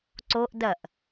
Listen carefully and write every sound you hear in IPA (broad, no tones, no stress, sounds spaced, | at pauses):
ǀ o ʔ d ɐ ʔ